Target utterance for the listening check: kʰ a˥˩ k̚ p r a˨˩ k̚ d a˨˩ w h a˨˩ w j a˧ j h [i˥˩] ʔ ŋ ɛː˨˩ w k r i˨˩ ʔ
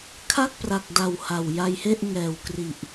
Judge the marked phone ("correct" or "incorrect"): incorrect